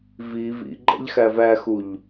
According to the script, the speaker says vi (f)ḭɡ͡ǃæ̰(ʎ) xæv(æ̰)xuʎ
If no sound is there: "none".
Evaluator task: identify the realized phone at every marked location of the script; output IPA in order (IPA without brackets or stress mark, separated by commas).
v, ʎ, æ